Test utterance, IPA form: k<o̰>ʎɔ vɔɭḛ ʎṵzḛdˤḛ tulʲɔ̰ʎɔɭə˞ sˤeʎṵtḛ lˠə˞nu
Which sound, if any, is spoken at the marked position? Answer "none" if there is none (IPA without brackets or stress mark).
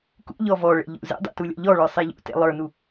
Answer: ṵ